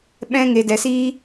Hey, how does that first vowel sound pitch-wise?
high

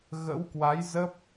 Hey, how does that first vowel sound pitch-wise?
rising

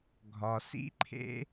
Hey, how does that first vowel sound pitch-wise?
low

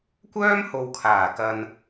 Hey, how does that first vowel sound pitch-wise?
high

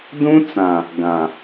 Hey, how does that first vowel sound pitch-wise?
high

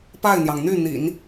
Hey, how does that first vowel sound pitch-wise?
falling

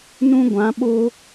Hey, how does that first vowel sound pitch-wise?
high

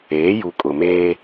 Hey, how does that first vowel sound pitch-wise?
rising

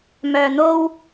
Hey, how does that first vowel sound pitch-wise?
low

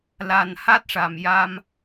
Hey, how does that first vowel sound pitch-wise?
low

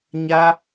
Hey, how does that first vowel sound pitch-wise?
high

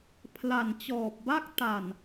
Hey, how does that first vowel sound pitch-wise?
low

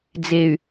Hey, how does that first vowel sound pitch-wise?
low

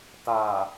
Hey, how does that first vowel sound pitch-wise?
low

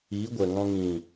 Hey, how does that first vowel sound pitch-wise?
rising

